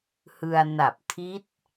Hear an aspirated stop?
yes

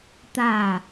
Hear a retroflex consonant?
no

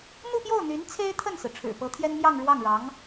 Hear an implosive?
no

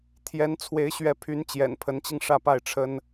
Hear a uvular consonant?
no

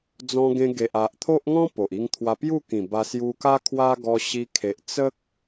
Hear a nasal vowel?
yes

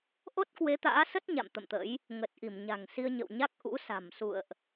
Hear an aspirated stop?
no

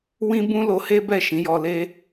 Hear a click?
no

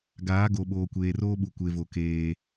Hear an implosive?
yes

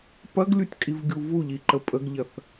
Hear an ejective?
yes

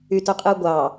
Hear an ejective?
yes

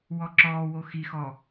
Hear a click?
yes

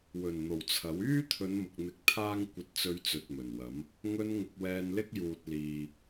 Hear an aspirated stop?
yes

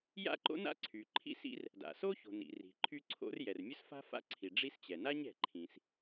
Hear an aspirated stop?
yes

